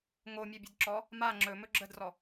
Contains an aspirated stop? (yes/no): no